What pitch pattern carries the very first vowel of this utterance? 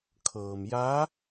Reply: low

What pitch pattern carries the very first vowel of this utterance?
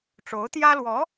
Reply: rising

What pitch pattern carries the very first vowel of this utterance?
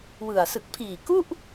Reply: low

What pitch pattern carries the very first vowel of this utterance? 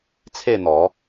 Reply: falling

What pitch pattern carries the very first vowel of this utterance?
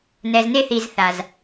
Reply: low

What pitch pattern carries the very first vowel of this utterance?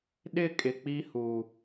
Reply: falling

